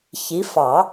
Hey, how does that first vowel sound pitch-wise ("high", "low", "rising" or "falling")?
rising